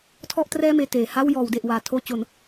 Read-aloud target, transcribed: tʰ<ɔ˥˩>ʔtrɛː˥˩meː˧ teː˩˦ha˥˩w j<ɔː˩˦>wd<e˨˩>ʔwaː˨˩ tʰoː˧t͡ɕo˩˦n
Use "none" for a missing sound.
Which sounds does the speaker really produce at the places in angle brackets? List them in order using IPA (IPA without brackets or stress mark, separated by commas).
ɔ˥˩, ɔː˩˦, e˨˩